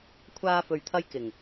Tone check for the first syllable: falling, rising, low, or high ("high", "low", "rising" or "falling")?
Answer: high